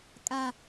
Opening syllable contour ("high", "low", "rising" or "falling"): low